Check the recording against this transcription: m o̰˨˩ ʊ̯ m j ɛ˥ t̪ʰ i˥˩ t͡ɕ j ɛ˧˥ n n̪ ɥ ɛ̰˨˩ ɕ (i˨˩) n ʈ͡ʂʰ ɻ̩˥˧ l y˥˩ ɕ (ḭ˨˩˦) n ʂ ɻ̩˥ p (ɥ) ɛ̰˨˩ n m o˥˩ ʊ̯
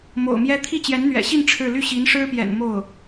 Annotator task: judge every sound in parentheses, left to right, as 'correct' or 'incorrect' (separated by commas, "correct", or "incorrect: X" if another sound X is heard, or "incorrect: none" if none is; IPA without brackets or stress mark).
incorrect: i˥˧, incorrect: i˧˥, incorrect: j